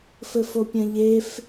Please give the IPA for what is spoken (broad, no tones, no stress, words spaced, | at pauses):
fɘfopʲɐ̃ʎef